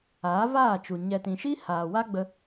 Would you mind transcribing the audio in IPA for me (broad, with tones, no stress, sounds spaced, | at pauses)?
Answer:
aː˨˦ v aː˦˨ t͡ʃ u˨ ɲ ɛ˨ t ĩ˨ ʃ i˦ h aː˨ w a˦ ɡ͡b ə˧